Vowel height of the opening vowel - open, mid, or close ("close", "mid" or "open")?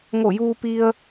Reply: mid